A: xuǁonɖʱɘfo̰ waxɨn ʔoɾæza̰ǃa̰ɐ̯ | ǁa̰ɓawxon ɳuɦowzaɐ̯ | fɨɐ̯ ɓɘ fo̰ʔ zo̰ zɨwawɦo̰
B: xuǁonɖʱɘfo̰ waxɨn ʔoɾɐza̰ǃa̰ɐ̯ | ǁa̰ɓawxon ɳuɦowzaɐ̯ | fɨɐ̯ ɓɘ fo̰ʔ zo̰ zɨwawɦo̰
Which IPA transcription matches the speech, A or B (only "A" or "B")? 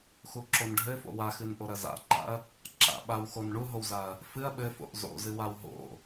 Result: B